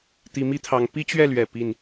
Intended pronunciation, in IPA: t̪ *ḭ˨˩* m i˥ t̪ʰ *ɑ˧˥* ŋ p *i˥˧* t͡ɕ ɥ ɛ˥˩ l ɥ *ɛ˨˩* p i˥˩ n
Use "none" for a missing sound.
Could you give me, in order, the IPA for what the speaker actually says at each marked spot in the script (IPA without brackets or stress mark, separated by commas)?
i˧˥, ɑ˧˥, i˥, ɛ˨˩